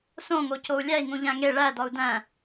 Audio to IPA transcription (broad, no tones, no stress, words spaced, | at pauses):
sõŋocou̯ lʲæi̯ŋũʎæ̃ ŋe ɭædɒu̯ dæ̃